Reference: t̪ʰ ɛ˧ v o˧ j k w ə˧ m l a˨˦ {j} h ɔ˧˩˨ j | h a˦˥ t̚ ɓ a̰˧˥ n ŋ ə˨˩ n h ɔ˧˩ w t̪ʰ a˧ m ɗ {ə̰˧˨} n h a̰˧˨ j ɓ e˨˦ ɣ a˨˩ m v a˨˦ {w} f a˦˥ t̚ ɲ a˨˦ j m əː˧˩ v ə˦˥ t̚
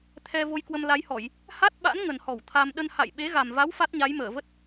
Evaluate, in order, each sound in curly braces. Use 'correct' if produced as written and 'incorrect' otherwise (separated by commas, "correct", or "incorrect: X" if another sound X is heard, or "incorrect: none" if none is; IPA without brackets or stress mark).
correct, incorrect: ə˧, correct